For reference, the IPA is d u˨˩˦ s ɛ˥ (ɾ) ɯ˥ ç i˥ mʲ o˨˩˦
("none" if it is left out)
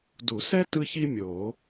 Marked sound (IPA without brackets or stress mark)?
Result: t